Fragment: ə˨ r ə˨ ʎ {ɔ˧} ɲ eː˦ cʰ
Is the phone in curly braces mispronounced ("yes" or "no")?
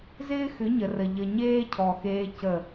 yes